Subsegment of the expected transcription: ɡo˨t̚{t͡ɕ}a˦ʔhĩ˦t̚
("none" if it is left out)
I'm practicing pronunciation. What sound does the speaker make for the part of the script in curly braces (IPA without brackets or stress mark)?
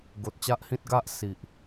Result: t͡ɕ